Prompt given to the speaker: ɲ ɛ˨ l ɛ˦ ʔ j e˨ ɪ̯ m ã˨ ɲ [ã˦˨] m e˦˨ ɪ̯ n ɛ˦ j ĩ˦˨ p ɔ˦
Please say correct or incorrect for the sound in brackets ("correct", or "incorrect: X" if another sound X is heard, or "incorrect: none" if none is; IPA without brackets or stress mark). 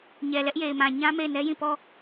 incorrect: ã˦